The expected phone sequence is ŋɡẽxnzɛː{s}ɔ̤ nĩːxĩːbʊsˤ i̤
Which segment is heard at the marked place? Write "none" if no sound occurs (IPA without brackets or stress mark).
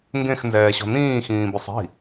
ɕ